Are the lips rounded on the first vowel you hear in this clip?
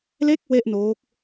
no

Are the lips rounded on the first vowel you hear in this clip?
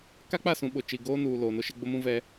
no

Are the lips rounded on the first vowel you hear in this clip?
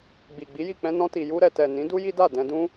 no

